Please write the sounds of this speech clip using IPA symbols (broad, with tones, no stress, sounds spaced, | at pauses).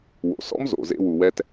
w o̰˩ s ɔ̰˥ m z o̰˩ z ḛ˨ w u˩ w ɛ˨ t